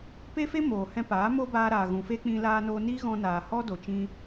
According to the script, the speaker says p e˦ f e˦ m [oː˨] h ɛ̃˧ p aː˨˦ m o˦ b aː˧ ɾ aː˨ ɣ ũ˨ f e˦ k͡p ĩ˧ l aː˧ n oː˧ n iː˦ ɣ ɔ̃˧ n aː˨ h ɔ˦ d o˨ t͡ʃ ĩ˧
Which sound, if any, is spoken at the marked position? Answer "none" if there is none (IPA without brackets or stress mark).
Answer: oː˨